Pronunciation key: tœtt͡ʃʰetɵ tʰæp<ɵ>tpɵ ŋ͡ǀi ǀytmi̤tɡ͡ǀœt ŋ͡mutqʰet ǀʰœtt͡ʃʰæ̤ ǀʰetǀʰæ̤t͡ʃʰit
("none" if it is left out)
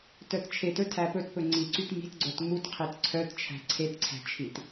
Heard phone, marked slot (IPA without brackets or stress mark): ɵ